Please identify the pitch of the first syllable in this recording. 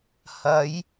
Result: rising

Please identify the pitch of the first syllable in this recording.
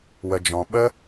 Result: low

